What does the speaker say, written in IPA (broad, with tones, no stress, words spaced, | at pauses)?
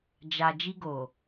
d͡ʒa˨ d͡ʒi˧ɡo˨